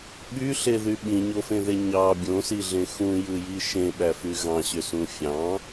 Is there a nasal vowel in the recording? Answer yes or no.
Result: yes